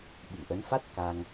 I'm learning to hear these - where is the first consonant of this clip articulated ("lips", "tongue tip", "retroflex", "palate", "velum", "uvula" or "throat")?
lips